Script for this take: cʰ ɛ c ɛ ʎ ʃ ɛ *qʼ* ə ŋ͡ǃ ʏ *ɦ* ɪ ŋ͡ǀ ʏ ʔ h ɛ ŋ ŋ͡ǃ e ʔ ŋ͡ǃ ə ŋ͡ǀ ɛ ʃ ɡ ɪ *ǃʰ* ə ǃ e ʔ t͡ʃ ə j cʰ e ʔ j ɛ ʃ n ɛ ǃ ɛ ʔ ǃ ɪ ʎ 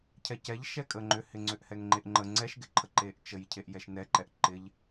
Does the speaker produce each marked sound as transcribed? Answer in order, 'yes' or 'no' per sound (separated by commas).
no, no, yes